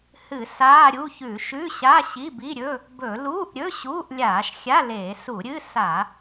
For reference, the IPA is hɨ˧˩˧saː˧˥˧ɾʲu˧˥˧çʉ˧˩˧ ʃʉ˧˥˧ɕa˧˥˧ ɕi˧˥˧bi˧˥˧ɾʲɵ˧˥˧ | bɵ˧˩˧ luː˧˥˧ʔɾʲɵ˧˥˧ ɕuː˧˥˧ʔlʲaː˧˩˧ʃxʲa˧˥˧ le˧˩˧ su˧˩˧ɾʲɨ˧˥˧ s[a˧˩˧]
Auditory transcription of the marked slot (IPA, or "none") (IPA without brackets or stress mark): a˧˩˧